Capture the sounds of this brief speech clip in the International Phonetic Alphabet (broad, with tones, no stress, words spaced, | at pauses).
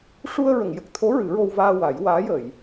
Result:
ʂu˧ə̯ɹə˨˩˨ŋjə˨˩k̚t̪ʰo˧˥ ɹɨ˨˩˦ɹo˧wvaː˧ wa˨˩˦jwaː˧˥jəː˨˩˨j